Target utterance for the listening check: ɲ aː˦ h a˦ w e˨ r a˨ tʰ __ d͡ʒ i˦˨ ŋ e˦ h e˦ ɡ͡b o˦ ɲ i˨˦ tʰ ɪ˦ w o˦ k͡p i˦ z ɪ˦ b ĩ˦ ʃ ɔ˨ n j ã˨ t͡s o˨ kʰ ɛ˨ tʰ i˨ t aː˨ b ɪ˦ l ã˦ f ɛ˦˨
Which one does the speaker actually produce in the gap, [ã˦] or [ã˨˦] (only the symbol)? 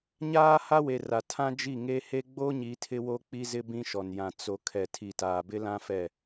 ã˦